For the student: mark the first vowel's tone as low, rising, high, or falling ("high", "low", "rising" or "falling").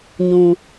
low